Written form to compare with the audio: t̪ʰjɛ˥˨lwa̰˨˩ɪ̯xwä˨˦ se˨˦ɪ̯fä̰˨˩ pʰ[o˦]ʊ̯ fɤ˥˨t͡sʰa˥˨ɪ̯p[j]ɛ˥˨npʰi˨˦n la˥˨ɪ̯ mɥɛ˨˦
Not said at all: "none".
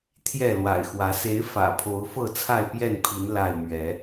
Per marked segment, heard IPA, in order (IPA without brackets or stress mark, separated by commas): o˨˦, j